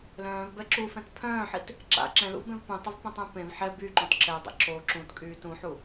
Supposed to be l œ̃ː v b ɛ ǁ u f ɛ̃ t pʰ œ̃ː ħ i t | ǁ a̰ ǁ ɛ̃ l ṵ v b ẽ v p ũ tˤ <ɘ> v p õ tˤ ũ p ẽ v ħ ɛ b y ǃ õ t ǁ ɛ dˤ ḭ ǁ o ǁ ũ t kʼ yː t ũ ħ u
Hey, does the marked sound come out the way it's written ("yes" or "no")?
yes